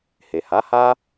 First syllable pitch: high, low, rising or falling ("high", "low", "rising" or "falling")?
low